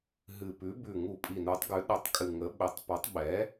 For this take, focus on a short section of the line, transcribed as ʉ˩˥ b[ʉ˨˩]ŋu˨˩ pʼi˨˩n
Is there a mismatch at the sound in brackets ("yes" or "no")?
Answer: no